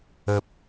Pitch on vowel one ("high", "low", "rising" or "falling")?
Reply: low